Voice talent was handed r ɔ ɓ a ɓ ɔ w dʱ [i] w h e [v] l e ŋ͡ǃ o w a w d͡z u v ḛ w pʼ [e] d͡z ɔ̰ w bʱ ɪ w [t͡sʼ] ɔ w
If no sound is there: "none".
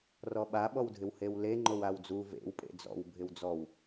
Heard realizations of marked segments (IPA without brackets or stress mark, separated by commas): ɪ, w, ḛ, d͡z